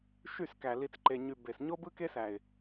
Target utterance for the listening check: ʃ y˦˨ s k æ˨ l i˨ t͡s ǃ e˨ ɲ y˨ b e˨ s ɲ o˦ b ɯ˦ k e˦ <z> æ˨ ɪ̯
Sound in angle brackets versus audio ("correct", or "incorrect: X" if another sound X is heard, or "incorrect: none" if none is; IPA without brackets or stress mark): incorrect: s